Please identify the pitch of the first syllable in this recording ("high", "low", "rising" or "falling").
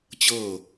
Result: falling